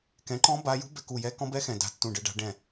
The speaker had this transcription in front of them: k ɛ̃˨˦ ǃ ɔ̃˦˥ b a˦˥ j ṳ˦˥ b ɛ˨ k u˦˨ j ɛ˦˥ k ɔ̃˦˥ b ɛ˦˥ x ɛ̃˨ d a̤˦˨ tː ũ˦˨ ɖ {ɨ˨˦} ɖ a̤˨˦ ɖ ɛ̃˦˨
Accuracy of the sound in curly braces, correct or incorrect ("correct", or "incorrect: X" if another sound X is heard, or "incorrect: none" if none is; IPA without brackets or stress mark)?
correct